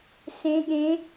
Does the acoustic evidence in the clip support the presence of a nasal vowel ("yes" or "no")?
yes